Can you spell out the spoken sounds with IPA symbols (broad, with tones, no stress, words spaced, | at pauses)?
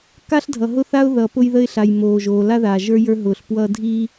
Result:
ka˦ɬdʱʌ˨ɦʊ˦θa˦ʊ̯ ðʌː˨pʊ˦jðə˦ɪ̯ɬa˨j moː˨ʒoː˨ la˦ðaː˨ʒə˞˦ jə˞˦ɦʊː˨ɬ pwʌː˦dʱiː˦